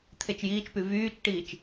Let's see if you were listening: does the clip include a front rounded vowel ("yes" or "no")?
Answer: yes